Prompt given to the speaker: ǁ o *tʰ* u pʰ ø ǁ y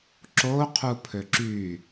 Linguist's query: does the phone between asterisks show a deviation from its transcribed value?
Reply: yes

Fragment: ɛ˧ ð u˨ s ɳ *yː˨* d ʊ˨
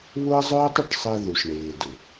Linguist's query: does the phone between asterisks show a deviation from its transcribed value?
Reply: yes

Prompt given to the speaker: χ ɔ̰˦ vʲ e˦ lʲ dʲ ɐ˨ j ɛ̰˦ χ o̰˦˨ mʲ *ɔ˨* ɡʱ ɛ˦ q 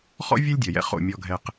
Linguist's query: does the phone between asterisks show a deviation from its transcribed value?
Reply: yes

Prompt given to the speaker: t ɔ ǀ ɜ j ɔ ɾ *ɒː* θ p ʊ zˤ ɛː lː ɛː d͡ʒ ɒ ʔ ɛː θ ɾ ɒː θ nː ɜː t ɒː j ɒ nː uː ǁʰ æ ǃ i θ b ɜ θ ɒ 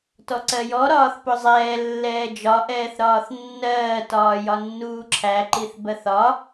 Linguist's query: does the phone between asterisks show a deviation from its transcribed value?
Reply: no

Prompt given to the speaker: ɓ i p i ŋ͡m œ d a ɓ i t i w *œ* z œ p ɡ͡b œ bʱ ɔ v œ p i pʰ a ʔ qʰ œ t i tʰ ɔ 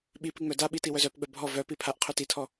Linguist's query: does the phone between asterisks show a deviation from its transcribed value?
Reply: no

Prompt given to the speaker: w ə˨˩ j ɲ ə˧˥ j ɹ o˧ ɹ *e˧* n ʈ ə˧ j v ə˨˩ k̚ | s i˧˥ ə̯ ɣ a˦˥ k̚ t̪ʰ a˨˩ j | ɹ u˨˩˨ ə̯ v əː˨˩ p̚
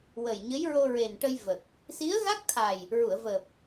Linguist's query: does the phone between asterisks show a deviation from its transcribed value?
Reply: yes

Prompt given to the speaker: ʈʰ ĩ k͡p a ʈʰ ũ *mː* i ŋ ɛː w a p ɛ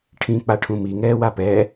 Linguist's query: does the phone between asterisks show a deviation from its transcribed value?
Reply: yes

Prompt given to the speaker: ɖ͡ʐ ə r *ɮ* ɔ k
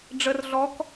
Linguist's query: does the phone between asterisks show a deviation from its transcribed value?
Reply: no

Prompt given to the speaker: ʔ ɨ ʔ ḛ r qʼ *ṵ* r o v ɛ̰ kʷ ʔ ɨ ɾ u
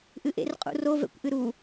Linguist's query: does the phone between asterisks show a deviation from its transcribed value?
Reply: no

